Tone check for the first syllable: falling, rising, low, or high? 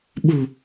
low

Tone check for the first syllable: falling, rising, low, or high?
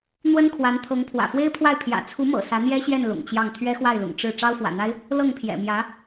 high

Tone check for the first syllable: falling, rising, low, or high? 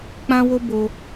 high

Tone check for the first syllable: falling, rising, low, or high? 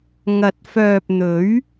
rising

